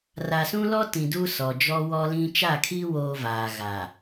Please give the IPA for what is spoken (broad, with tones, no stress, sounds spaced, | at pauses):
r a˨ s ũ˦ l ɔ˦ t ĩ˨ d u˦ s ɔ˨ d͡ʒ ɔ˦ w ɔ˦ l ĩ˦ t͡ʃ a˦˨ kʰ i˦ w oː˦ v aː˨ ɣ a˨